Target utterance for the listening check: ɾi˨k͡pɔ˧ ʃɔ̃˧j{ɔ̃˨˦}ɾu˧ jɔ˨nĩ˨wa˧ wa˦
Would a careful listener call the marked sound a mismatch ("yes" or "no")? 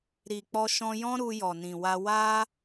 yes